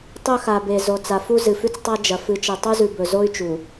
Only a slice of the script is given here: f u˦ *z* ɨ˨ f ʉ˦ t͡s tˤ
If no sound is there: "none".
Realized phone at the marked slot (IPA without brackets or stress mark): z